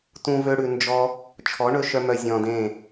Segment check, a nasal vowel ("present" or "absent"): present